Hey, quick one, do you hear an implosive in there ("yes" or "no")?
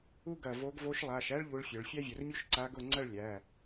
no